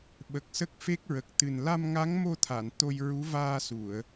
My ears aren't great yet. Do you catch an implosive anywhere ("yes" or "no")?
yes